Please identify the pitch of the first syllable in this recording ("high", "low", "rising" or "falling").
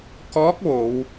rising